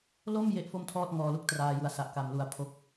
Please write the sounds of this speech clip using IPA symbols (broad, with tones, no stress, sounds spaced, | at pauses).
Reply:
l o˥˩ m j e˥˩ ʔ f o˥˩ m tʰ ɔː˥˩ t̚ ŋ ɔː˧ l u˥˩ k̚ t r aː˧ j u˩˦ a̯ s a˨˩ ʔ k a˨˩ m l u˨˩ a̯ pʰ o˦˥ k̚